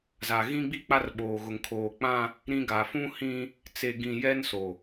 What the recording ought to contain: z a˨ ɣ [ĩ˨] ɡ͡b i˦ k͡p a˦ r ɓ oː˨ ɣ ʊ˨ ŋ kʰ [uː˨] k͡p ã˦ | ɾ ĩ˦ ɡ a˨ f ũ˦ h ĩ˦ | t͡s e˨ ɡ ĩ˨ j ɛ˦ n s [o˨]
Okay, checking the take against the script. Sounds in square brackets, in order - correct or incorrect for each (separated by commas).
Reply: incorrect, incorrect, correct